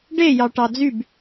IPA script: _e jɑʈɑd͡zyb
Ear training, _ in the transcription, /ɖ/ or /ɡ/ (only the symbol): ɖ